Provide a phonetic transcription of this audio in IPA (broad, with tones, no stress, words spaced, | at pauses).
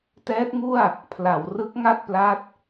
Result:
tɛː˦˥t̚ŋu˥˩a̯ | pʰla˩˦wrɯ˦˥k̚ ŋa˥˩t̚pla˦˥t̚